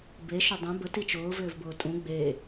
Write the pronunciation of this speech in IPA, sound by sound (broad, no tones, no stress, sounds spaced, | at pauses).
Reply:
b e ʃ ʏ dˤ ẽ b ə t i t͡ʃ ʊː v ʏː v b ʊː tʼ ũ ɡ͡b e